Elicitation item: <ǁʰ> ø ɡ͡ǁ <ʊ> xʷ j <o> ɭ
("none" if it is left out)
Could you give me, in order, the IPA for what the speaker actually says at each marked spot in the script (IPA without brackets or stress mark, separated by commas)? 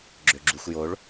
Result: ɡ͡ǁ, u, o